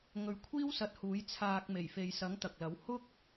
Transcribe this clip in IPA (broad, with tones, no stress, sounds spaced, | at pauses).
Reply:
ŋ ɵ˨˥ ɥ kʷʰ iː˥ w s ɐ˨˥ t̚ h uː˨˥ j t͡sʰ aː˧ k̚ m e˨˩ j f e˨ j s ɐ˨˥ ŋ t̪ ɐ˨ k̚ l ɐ˨˥ w h ʊ˥ k̚